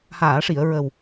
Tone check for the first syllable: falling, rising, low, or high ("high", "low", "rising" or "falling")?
low